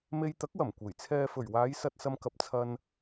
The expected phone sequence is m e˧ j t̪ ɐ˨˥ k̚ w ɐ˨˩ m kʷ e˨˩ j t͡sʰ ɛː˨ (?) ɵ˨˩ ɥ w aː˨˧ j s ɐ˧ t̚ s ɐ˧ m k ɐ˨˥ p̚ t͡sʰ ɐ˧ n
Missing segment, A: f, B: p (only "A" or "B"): A